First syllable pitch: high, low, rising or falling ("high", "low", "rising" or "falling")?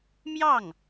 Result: falling